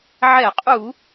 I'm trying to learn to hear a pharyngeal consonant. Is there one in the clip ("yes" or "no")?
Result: yes